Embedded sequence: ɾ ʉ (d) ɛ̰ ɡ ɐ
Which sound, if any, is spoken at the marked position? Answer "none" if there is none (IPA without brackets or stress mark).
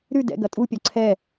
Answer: d